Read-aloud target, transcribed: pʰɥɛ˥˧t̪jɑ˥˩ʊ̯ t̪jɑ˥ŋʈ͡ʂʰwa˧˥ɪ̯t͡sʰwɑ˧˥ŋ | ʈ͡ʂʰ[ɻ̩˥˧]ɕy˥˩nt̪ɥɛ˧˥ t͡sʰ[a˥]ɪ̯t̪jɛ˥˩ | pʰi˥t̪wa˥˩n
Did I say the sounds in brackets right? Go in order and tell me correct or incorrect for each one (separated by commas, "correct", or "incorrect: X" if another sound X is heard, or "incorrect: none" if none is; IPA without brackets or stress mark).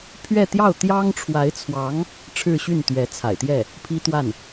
correct, incorrect: a̰˨˩